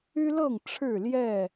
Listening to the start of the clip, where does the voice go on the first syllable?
high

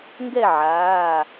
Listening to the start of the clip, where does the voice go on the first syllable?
falling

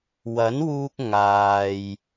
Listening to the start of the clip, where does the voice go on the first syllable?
rising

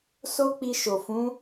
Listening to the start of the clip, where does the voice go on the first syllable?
high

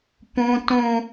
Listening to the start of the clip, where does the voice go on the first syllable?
high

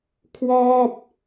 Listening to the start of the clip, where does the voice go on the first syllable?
falling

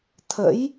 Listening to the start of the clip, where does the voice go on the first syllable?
rising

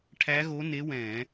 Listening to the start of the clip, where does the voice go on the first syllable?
rising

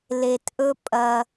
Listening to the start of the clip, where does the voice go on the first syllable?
low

